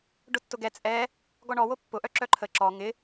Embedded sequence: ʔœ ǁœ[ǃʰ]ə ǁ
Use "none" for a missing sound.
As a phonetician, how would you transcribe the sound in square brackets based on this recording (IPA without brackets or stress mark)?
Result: ǃʰ